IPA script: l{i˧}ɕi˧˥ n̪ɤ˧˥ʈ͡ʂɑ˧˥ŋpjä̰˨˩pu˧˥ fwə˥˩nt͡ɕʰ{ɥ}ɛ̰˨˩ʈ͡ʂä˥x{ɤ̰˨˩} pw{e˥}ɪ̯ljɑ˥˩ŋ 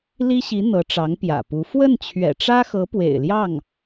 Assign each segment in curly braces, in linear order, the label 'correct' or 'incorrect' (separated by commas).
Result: incorrect, correct, incorrect, incorrect